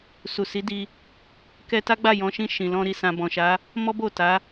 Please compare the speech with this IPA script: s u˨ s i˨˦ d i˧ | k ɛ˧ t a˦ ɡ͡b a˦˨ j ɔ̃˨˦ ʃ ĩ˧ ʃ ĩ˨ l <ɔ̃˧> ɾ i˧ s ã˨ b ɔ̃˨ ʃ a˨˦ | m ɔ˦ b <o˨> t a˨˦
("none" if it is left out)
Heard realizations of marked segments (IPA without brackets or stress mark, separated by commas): ɔ̃˧, o˦˨